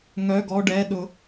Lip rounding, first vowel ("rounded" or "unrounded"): rounded